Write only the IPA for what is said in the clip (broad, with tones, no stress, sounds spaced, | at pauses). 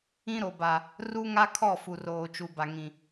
ĩ˦ ɾ o˨ b a˨ | r u˦ ŋ a˦ kʰ ɔ˦˨ f u˨ r oː˨ t͡ʃ u˨ b a˨ ŋ ĩ˨